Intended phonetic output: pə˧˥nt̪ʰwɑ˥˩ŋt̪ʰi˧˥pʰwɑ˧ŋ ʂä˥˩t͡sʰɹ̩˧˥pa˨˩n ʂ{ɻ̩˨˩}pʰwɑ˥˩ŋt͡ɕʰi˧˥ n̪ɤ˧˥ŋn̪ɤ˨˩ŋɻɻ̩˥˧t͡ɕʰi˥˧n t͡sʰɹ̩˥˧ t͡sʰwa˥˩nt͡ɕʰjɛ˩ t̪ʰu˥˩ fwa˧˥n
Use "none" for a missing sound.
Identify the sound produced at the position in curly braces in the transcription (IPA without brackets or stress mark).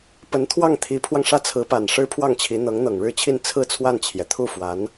ɻ̩˥